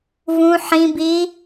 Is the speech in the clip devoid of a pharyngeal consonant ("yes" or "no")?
no